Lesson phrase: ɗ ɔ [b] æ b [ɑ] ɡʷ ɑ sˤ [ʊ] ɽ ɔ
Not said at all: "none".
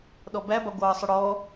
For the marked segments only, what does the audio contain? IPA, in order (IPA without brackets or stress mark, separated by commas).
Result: b, ɑ, ʊ